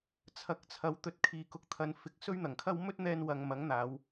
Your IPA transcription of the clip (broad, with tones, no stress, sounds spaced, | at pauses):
t͡sʰ ɐ˨˥ k̚ t͡sʰ ɐ˨˥ w t̪ ɵ˧ t̚ kʰ iː˨ k ʊ˨˥ k̚ t̪ʰ ɐ˨˧ n f ɪ˨ k̚ s ɵ˥ ɥ n̪ ɐ˨˩ ŋ kʰ ɐ˥ w m ɵ˥ t̚ n̪ ɛː˧ n w ɐ˨ ŋ m ɐ˨˥ ŋ n̪ aː˨˧ w